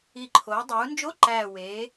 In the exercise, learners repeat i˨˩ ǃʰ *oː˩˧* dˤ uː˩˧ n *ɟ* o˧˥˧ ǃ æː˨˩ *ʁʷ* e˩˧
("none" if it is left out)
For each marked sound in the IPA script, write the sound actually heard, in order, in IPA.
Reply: oː˩˧, d͡ʒ, w

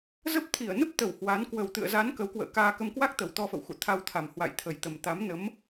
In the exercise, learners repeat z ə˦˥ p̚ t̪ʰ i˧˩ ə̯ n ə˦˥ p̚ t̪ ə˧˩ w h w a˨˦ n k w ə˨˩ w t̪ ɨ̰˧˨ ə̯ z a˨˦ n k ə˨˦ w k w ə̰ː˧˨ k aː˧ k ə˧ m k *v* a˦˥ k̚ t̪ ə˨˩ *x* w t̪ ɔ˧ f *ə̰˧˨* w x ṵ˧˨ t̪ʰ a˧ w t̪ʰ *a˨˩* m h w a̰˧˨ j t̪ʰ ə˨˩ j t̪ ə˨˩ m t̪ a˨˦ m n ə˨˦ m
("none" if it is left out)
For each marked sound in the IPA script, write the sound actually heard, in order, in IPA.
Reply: w, none, ə̰˧˨, a˨˩

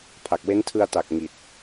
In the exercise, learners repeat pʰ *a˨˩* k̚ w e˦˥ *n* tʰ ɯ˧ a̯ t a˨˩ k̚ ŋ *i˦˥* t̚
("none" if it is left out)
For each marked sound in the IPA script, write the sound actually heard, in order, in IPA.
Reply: a˨˩, n, i˨˩

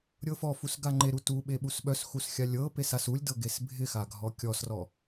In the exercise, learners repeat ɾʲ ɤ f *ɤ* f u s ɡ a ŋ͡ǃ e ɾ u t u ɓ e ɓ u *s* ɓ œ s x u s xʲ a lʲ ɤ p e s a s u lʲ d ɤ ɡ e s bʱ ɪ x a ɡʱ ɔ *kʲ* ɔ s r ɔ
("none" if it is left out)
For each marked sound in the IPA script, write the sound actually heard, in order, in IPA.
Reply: ɔ, s, kʲ

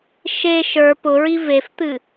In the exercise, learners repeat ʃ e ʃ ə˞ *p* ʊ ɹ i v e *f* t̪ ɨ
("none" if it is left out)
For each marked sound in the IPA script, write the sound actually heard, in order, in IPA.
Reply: p, f

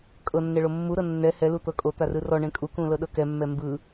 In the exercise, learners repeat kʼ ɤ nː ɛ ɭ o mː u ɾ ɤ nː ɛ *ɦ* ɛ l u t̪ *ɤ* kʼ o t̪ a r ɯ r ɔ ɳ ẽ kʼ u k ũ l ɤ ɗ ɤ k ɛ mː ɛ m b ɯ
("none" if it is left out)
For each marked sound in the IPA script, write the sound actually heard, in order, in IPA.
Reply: h, ɤ

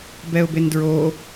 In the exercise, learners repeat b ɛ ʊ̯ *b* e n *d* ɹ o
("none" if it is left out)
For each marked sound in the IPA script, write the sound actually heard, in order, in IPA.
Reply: b, d

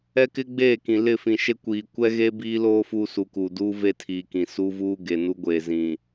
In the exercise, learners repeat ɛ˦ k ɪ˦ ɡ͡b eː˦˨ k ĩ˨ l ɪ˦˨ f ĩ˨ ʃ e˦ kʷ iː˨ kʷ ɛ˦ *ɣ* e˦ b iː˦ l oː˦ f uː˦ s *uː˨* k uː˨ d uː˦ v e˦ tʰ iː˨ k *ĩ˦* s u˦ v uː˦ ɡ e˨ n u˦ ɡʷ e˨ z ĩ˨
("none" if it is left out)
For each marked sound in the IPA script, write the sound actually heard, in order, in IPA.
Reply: ɣ, u˨, ĩ˨

